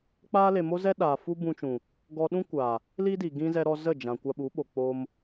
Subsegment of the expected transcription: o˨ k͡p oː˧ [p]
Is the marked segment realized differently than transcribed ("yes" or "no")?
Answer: yes